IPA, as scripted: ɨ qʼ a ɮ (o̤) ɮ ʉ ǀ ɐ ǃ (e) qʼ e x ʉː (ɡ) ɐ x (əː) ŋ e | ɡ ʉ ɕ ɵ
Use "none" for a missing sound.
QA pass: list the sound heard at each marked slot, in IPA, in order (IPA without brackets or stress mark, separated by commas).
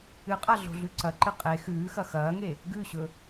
o̤, ɨ, x, ɐː